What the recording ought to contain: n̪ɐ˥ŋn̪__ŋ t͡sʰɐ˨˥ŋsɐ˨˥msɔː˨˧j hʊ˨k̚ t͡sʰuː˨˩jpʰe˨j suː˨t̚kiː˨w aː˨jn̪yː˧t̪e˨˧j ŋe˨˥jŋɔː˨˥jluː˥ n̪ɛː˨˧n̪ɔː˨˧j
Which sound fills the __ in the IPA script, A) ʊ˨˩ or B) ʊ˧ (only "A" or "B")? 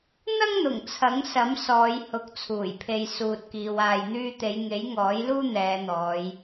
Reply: A